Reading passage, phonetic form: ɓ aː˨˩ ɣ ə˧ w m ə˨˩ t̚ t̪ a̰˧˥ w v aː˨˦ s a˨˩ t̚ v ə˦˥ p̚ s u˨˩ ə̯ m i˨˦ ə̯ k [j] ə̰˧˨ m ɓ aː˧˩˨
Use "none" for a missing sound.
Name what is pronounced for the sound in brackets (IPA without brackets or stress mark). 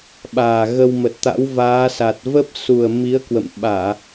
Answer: w